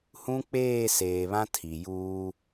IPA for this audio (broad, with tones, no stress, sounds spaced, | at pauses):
h ũ˦ k͡p eː˦˨ s eː˨ β ã˦ tʰ i˨ j uː˦